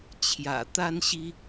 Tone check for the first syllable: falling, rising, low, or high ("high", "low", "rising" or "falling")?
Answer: low